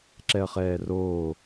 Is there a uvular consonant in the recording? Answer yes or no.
yes